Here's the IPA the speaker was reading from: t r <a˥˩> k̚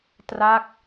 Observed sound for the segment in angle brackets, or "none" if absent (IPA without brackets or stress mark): a˥˩